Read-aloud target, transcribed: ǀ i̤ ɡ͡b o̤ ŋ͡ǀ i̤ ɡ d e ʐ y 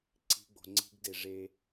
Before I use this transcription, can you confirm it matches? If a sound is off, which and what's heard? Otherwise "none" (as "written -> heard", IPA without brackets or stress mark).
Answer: y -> e